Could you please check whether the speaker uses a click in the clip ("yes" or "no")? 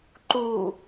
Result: yes